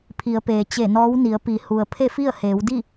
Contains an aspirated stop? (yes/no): yes